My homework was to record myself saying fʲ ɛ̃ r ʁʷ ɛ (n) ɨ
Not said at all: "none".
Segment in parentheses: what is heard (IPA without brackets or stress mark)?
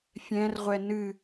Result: n